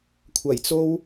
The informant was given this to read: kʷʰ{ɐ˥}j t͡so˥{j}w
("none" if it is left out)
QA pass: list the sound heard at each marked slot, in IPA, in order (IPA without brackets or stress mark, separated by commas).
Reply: ɐ˨˩, none